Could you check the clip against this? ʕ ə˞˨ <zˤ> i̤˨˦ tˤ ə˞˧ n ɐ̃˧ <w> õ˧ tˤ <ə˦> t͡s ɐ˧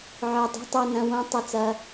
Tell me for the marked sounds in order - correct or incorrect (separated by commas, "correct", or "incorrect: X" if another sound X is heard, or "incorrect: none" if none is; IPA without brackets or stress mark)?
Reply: incorrect: dˤ, correct, incorrect: ə˧